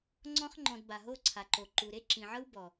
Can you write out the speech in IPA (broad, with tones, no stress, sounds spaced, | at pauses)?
ŋ͡ǀ ɔ̃˧ χ ŋ͡ǃ ɔ̃˨ d b a˨ ɦ o˦˨ ǀʰ a˨ ǃ o˨ ǃ u˨ ɾ e˦ ǁ ĩ˨ ʕ ɤ˦ w b ɔ˨